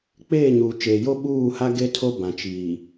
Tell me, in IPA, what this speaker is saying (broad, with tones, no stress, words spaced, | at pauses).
k͡peː˦˨ɲuː˨t͡ʃeː˨jo˦ ɓuː˦˨ha˦ ɡe˦tʰo˦ bã˨t͡ʃiː˨